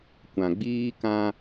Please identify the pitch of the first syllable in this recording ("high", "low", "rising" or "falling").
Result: low